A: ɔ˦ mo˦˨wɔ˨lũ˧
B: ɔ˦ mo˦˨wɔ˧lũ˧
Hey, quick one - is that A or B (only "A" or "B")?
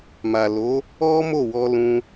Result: B